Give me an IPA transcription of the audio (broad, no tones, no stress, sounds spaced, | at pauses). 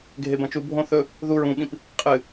ɡʱ e b ɐ̃ t͡ʃ u bʱ õ θ ɵ | ð u ɹ ũ ɓ ĩ p | qʼ ɨ